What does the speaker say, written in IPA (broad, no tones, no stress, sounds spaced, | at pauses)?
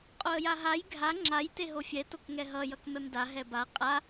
qʼ o ə̯ j a ɦ a j ɡʱ a ŋ͡ǁ a j t e ɦ o fʲ ɛ t o k ŋ ɛ ɦ ʌ j ʌ k m ɛ m d a ɦ ɛ b a qʼ a